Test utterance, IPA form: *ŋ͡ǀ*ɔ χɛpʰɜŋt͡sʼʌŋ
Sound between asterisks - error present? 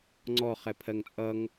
no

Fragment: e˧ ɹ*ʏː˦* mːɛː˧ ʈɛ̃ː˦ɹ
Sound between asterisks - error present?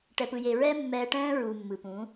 yes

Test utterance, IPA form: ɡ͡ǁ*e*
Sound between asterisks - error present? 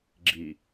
yes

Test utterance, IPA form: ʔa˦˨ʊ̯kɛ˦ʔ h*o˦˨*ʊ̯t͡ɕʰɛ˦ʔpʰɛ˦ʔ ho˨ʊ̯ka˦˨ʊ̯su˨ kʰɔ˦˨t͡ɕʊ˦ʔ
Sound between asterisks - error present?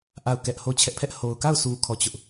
no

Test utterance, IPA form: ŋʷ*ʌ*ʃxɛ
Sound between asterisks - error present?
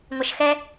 no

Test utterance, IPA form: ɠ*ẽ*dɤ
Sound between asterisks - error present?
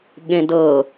no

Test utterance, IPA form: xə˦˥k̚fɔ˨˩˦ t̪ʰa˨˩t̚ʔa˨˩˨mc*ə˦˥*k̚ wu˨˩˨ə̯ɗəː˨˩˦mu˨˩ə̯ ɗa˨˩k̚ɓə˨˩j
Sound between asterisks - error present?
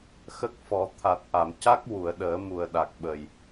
yes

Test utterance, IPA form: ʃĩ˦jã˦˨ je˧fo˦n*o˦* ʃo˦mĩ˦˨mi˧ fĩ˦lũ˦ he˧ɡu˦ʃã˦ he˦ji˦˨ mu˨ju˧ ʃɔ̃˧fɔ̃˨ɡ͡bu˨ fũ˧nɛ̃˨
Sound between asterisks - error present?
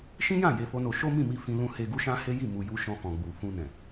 yes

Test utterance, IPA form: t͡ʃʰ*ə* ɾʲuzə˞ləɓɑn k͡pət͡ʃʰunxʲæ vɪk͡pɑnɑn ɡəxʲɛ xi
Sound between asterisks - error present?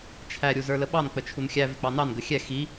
yes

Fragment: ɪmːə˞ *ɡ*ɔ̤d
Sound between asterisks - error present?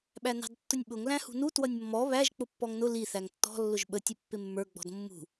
yes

